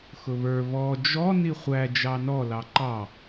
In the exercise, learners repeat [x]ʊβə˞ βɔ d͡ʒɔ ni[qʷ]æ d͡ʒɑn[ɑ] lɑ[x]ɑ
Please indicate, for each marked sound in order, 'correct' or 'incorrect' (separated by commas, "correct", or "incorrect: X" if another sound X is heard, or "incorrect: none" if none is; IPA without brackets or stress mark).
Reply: correct, incorrect: χʷ, incorrect: ɔ, incorrect: ǃ